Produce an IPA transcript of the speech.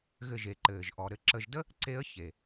ɣ ɘ˧ ʒ e˨ ǃ ɘː˨ ʒ ʔ ɔ˨ ɾ ɘ˧ ǁ ə˧ ʒ d ə˦ | ǀ e˦ ə̯ ç e˨

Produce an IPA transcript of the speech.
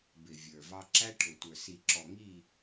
b ɪ˨ vʲ ə˞˨ v ɑ˦ ǁ æ˦ ʈʰ ʊ˨ tʷ ə˞˨ s i˨ ǁ ɔ˨ ŋ i˦˨

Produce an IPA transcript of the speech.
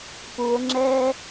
p u o̯ ŋ͡ǁ ɛː

